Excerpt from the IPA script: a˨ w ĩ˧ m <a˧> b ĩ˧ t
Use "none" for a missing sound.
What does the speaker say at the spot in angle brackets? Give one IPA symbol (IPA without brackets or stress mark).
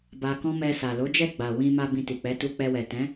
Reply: a˧